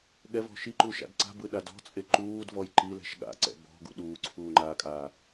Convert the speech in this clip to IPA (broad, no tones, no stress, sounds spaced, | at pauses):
ɠ ɛ v ɔ̤ ʃ i ǃ u ʃ a̰ d ǀ a̤ b ɯ ɗ a d ɔ̤ t͡sʼ e ǃ uː d v ɔ j ǃ i l ɛ̤ ʃ ɠ a̰ ǀ ɛ̰ b ɔ̤ ɡ ṵ ɗ uː ǀʰ uː ŋ͡ǃ aː kʼ aː